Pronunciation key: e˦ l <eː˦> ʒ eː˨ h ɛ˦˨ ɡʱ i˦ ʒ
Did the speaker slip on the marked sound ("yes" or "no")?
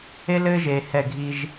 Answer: yes